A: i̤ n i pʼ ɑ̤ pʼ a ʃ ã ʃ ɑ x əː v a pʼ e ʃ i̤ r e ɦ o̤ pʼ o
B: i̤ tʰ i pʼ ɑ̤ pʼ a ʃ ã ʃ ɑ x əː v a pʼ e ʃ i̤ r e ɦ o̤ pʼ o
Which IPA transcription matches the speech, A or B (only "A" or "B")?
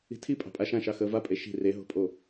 B